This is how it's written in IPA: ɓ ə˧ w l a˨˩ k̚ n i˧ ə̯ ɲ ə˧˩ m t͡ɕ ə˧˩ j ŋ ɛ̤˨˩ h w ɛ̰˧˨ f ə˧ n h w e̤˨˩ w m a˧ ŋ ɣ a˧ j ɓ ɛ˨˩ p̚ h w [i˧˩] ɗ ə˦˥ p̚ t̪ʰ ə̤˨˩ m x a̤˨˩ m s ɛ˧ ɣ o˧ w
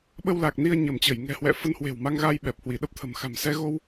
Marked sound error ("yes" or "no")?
no